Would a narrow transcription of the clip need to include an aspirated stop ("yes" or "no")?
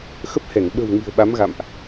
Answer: no